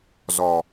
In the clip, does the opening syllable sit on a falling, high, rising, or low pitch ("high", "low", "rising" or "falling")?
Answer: low